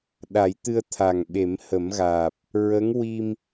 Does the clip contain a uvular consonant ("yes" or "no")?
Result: no